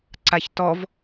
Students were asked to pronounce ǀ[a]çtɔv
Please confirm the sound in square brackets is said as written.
yes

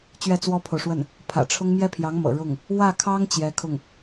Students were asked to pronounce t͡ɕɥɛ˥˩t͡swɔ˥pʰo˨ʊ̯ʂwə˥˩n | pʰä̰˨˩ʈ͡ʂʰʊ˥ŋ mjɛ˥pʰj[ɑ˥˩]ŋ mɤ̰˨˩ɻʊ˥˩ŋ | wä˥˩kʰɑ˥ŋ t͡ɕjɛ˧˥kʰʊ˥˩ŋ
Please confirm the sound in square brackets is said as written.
no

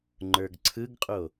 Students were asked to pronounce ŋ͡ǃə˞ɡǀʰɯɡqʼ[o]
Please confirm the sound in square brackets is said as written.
yes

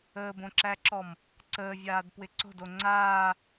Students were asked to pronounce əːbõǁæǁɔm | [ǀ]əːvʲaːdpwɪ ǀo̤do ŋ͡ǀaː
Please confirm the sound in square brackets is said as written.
yes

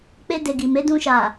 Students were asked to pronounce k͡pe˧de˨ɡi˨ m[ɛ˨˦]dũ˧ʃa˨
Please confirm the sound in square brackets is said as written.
no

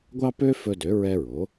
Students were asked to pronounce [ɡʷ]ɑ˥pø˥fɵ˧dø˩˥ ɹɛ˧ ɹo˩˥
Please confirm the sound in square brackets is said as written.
yes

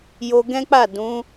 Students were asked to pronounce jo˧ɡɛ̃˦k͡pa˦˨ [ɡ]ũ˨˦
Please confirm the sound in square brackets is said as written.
no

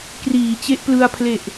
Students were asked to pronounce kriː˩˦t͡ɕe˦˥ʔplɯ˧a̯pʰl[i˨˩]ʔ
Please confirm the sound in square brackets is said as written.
no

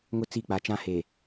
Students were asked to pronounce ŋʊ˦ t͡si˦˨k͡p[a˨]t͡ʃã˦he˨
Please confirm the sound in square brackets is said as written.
yes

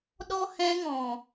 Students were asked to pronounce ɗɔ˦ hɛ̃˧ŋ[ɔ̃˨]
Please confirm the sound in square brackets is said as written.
yes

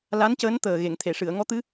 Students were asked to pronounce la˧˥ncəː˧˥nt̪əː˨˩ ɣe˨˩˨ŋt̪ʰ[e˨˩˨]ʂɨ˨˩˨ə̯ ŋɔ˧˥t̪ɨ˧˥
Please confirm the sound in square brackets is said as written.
yes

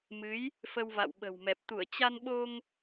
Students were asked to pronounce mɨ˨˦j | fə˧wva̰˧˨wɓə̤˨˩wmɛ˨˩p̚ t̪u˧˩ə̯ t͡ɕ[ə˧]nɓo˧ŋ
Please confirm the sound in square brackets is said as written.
no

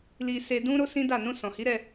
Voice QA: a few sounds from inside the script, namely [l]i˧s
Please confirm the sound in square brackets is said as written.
yes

